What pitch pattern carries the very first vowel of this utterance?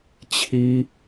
high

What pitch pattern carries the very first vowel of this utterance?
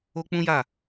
high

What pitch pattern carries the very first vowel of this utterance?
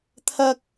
high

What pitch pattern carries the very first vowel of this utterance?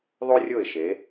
high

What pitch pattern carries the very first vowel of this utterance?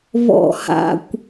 low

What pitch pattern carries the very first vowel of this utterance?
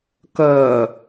low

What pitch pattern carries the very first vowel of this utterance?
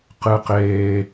high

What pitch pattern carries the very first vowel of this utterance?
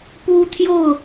high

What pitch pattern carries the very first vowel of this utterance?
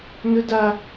high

